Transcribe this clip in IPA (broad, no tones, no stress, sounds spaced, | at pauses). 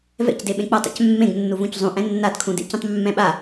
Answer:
v ɛ̰ c d e ɓ ẽ k͡p ʌ tˤ a̰ c mː ẽ ɡ nː u v ũ c zˤ ũ ʔ ɛ̃ nː a d kʰ ũ d ḛ c ũ tˤ mː ɛ̃ ɓ a